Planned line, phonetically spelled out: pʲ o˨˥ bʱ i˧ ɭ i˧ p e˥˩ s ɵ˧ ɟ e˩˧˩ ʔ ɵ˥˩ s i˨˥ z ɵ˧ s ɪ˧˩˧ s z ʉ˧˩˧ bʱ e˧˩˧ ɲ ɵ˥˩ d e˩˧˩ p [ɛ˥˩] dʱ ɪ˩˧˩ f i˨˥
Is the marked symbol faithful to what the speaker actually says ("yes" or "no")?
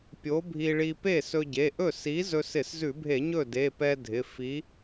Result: no